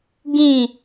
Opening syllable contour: falling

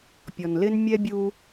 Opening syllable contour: low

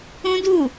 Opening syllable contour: high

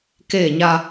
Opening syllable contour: falling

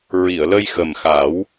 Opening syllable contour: low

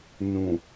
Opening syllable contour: low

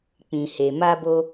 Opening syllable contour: low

